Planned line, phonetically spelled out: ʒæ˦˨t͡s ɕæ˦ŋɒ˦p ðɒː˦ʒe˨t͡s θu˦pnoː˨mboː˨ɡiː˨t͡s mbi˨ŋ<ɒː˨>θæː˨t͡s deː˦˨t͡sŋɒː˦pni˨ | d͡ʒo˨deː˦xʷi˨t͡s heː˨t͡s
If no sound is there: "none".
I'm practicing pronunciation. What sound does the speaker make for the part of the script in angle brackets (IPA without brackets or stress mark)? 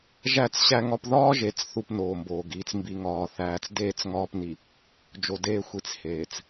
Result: ɒː˨